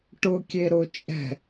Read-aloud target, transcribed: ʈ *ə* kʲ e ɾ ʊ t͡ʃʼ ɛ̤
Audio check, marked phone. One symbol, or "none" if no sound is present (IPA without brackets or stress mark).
ʊ